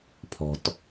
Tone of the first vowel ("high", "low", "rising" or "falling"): low